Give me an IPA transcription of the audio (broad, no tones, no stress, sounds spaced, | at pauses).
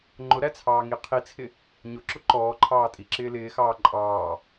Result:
ŋ͡ǃ ʊ ɾ æ t͡sʰ ɑː ŋ i qʰ i t͡sʰ ɪ | ɲ ʊ ǁ ʊ ǃ ɔː ǃʰ ɑː tʼ i ǁ ɪː l ɪː x ɑː ǃʼ ɑː